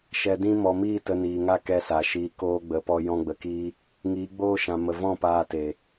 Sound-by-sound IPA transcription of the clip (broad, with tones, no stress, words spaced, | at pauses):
ʃɛ˨dĩ˧ mɔ˨miː˦˨ tə˧niː˨ŋa˦ kɛ˧sa˨ʃiː˧ koː˧ɡ͡bə˨˦pɔ˧ jɔ̃˦ɡ͡bə˧kiː˦ | ŋiː˨˦ɡ͡boː˦ ʃã˨mə˨vɔ̃˦˨ paː˧te˨